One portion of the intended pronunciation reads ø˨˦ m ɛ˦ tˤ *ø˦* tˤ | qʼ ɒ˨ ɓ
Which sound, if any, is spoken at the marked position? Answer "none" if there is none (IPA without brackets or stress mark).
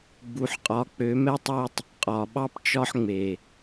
ø˦